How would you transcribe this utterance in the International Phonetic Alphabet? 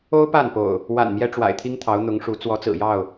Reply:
o˦ ʊ̯ p a˥˨ n p o̰˨˩ ʊ̯ | w a̰˨˩ n m j ɛ˦ ʈ͡ʂ w a̰˨˩ ɪ̯ t̪ʰ i˦ ŋ t̪ʰ ɑ˨˦ ʊ̯ n̪ ʊ˨˦ ŋ ʂ u˨˦ t͡s w ɔ˨˦ t͡s ɹ̩˨˩ j ɑ˥˨ ʊ̯

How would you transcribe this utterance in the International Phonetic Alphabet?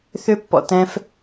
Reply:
θ ʏ˦ pː ɔ̰˨ t ɛ̃˦ f

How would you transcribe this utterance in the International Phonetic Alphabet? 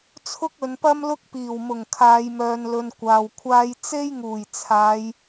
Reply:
t͡sʰ ʊ˥ k̚ ɵ˨˧ n p ɐ˥ m l ʊ˥ k̚ p iː˨˩ w m ʊ˨˩ ŋ kʰ aː˨˧ j m œː˨ n l ɵ˨ n kʷ aː˨ w kʷʰ aː˥ j t͡s e˥ j ŋ uː˨˩ j t͡sʰ aː˨˧ j

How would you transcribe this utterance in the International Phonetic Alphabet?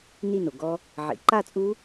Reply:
n i˥˧ n o˩ ɡ ɔ˦˥ | ʕ ḭ˩ ǃ a˥˧ t͡sʼ u˦˥

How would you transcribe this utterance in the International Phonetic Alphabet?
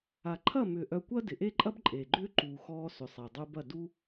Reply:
a˨ ǃʰ ɐ˦˨ m ʏː˨ ʔ œ˧ kʷ ɐ˦ d ɪ˨ ʔ e˦ ǃʼ ɐ˦ b ǃʼ eː˨ ɡ͡ǃ ʏː˦ ǃ uː˨ x ɔː˧ s ʏ˨ sˤ e˨ dˤ uː˧ b ɐ˦˨ d u˦

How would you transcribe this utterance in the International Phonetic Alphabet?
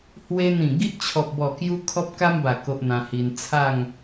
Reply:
h w e˧ n̪ ĩ˨˩ ɡ i˦ ʔ t͡ɕʰ ɔ˨ p̚ b ɔ˨˩ k j u˧ kʰ ɔ˦ p̚ k a˦ m b a˨˩ k o˦ ʔ n̪ ã˧ h i˧ n t͡sʰ a˥˧ ŋ

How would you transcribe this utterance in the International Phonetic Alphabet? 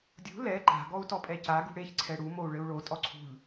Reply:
dʲ ṳ l ɛ ǃ a̤ ɡ ɔ u̯ t ɔ pʼ ɛ c a ɡ ṳ ɽ e ç ǀʰ ɛ ɽ u m o u̯ ɭ ɘ u̯ ɭ o tʼ ɔ ǀʰ ṳ ʎ

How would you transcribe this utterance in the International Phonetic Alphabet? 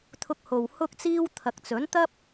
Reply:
t̪ʰ ʊ˧ k̚ h o˨ w h ʊ˥ k̚ t͡s iː˥ w t̪ʰ ɐ˨ k̚ t͡s ɵ˨˥ n t̪ ɐ˥ p̚

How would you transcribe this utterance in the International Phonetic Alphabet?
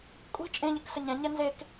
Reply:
kʷʼ i̤ t͡ʃʼ ẽ ʎ ɨ k s ə ɲ ɛ̃ ɲ ɛ n z e k

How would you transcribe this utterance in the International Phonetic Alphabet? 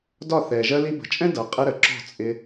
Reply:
d ɒ˦˨ θ ɛ˨ ʒ ɜ˧ l i˧ b ə̤˨ t͡ʃʼ ɛ̃˦ d ʌ˨ qʼ ɪ˧ ɾ ə˨ ǁ ɔ̤˦˨ t͡sʼ ɪ˧

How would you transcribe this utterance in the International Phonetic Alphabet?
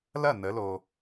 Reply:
l ɐ˥˩ n ə˩˧ l o˩

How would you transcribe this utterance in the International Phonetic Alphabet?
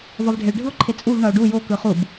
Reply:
v ʌ v ɖʱ e ɭ ɖʱ ɯ o̯ ǃʰ e t͡sʼ u v ɳ ʌ o̯ ɖ u j o k ɯ χ u b

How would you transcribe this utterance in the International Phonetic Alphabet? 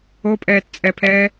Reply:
o pʼ ɛː t t͡sʼ ɛ pʰ ɛː

